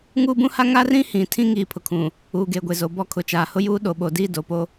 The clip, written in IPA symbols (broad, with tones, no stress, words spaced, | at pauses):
ŋuː˦bũ˦ha˦ ŋa˦rĩ˦ hĩ˨ tʰĩ˦ ŋiː˨pʰʊ˨kʰũ˨ | uː˨ɡeː˨ɡʷe˨ zo˨bɔ˦˨kʰʊ˨t͡ʃaː˨ hʊ˦juː˦ ɗo˨ɓo˨diː˦˨ do˨po˦